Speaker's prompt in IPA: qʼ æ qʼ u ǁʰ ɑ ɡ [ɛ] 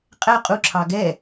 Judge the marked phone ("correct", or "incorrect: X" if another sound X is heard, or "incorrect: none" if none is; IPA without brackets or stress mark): correct